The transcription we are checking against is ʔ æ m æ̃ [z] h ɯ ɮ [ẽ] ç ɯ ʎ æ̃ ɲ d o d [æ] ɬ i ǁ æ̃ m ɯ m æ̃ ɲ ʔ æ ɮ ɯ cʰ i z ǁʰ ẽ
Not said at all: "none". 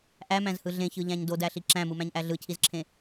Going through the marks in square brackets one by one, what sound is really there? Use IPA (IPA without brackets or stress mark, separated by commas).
z, ẽ, æ